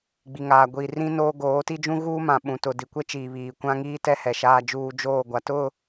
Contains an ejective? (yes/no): no